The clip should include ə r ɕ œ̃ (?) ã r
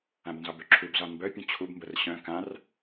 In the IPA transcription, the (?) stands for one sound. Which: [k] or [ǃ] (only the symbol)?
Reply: k